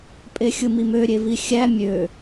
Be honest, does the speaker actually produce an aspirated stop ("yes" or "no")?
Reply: no